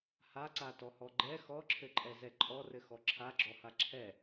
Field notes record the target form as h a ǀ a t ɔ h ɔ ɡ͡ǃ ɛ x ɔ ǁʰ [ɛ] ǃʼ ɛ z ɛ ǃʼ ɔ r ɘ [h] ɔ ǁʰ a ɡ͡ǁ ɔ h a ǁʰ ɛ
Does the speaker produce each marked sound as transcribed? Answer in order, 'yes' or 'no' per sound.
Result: no, no

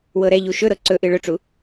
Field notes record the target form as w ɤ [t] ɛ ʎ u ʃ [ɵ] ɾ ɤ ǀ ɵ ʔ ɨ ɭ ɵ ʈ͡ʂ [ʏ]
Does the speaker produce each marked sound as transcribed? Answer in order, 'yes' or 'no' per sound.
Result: no, yes, no

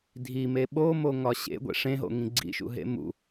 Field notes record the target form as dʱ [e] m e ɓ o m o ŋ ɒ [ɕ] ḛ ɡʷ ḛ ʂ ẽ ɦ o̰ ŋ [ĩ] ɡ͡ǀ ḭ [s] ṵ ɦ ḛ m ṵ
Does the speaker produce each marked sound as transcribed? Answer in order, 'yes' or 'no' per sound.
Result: no, yes, yes, no

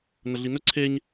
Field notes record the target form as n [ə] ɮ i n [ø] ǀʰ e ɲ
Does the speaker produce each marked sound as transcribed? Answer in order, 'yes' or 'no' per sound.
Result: yes, no

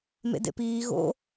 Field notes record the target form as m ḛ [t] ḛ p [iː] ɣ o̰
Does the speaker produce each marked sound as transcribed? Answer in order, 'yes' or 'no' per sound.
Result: no, yes

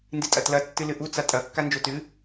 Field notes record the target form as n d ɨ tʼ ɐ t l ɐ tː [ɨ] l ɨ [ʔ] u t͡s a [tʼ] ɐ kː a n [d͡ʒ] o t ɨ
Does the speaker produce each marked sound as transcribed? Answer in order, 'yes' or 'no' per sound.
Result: yes, yes, yes, yes

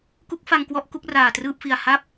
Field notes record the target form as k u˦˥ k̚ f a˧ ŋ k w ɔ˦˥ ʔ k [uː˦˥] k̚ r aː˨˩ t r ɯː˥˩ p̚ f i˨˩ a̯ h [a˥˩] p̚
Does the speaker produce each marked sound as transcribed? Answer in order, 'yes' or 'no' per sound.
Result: no, yes

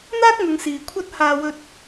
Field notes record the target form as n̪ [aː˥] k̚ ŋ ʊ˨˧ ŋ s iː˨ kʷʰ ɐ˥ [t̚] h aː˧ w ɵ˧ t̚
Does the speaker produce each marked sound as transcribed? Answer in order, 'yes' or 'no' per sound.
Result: yes, yes

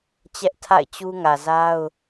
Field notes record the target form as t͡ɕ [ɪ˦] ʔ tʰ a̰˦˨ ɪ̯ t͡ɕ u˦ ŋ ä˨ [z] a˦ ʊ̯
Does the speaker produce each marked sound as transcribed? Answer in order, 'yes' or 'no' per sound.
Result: no, yes

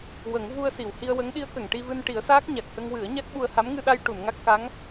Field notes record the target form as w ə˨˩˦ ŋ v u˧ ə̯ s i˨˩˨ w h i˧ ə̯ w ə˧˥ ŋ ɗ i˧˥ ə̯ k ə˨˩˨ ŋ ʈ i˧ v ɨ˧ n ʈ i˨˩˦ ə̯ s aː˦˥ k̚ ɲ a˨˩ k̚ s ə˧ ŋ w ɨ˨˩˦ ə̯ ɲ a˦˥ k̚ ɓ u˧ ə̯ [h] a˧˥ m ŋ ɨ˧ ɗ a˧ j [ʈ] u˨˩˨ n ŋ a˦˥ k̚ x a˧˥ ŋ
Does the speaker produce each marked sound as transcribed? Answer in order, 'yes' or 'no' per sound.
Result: yes, yes

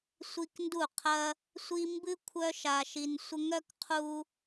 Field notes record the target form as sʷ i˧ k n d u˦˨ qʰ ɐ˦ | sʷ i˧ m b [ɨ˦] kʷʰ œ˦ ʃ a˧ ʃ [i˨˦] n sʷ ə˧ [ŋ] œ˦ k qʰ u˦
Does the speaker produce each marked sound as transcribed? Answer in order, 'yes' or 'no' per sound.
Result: yes, no, yes

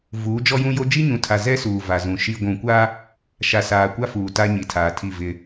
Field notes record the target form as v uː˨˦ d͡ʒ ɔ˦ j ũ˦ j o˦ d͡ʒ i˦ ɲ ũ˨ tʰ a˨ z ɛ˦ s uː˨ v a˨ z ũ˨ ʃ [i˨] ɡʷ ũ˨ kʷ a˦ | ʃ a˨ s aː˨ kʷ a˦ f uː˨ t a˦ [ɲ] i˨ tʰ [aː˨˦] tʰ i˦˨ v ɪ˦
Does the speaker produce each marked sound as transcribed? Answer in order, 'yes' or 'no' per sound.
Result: yes, yes, no

